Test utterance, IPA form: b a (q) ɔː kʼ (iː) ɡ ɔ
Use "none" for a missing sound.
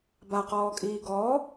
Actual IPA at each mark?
q, iː

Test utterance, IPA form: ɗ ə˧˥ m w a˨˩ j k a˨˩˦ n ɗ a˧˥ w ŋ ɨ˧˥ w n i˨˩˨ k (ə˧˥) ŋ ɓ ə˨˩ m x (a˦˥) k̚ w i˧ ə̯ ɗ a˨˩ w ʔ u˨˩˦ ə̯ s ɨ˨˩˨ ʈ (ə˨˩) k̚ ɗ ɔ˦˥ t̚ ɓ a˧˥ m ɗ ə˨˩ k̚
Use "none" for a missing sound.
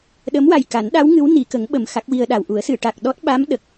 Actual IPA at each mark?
ə˨˩˦, a˦˥, a˨˩

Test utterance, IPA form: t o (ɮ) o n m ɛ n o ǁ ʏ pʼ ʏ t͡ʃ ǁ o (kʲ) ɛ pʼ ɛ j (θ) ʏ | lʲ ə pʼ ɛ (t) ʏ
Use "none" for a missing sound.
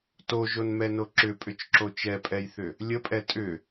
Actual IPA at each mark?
ʒ, t͡ʃ, θ, tʼ

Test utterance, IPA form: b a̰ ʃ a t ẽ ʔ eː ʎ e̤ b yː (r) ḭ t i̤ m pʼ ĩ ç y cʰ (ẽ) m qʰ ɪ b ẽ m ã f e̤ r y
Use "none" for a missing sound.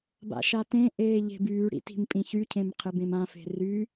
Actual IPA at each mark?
ɽ, ẽ

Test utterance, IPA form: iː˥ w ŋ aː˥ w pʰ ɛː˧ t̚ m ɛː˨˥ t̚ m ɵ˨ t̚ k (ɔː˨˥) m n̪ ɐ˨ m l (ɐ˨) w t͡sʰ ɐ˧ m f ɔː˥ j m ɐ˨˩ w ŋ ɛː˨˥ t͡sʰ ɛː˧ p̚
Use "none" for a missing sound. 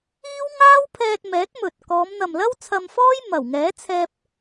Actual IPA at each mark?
ɔː˨˧, ɐ˥

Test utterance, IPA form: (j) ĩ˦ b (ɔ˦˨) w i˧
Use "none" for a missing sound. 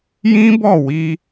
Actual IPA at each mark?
j, ɔ˦˨

